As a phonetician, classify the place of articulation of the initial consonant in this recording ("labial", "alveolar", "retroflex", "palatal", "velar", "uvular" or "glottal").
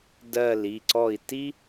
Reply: alveolar